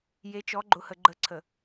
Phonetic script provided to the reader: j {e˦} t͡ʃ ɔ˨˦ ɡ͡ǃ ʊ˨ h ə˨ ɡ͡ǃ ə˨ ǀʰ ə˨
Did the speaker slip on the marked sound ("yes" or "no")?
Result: yes